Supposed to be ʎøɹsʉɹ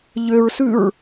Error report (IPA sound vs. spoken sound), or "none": none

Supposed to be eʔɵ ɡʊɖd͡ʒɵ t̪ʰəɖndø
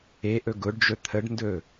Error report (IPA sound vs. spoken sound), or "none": ø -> ɵ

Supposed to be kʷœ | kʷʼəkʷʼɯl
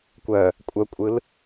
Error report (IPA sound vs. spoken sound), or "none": ə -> œ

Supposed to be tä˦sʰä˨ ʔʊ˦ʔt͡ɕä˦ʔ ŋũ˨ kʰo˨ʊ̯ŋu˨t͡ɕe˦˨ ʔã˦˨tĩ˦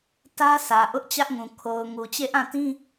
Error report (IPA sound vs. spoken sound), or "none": none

